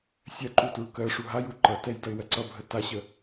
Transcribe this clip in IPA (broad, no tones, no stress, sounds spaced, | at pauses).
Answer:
sʲ ɜ ǃ u t ɹ u k ɜ ʂ u ɦ a j u ǃ ʌ t ɛ j d ʌ ɪ̯ w ɜ ǀ ʌ bʱ ə t a ɕ ə